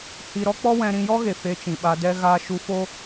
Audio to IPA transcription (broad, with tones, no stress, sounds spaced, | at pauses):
h i˧ ɾ ɔ˦ k͡p ɔ˦ w ɛ̃˧ ɾ ĩ˧ j ɔ˦ ɣ e˨ f e˧ t͡ʃ ĩ˨ ɓ a˧ d ɛ˧ ɣ aː˧ ʃ u˧ f o˦